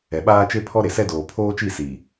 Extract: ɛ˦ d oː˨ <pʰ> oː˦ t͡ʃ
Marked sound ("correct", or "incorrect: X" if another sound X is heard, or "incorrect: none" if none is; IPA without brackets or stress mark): correct